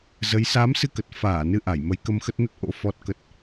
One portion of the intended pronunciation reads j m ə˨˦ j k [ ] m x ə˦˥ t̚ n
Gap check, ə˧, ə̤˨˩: ə˧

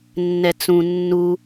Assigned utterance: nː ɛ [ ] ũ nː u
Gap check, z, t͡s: t͡s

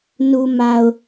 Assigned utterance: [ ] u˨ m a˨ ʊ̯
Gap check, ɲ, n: n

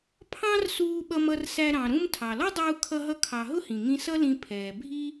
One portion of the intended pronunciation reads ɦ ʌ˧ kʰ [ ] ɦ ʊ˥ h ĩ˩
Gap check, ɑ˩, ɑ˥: ɑ˩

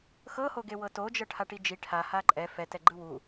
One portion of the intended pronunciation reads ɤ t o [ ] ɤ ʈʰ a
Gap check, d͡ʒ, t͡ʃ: d͡ʒ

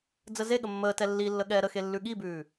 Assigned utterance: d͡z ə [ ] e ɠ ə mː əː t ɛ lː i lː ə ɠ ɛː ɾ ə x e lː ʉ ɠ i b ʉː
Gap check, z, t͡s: z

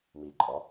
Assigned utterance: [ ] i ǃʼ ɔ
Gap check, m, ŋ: m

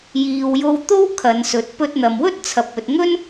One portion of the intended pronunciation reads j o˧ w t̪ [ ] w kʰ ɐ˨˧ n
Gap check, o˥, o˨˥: o˥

